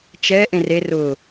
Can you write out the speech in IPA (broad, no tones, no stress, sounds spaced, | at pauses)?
t͡ʃ ɛ ʔ ẽ r e r ʊ